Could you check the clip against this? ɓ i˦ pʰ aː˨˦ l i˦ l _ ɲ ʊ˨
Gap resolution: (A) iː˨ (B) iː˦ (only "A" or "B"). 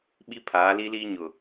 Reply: B